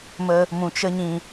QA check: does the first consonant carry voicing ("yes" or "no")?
yes